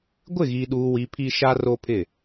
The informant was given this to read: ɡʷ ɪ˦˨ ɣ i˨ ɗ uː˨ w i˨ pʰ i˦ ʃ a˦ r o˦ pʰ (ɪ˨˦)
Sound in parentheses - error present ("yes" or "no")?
yes